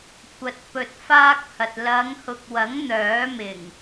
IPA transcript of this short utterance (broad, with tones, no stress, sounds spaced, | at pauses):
kʷ ɐ˨˥ t̚ p ɵ˧ t̚ f aː˥ k̚ h ɐ˨ t̚ l ɐ˨˧ ŋ h ʊ˨ k̚ w ɐ˨˥ ŋ n̪ œː˨˥ m ɪ˨˩ ŋ